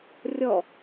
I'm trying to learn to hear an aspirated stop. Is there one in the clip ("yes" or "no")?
no